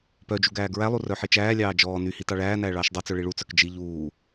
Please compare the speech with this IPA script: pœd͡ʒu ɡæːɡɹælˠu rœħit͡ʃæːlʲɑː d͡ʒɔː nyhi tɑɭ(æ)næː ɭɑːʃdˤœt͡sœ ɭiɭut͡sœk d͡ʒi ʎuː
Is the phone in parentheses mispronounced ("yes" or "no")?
yes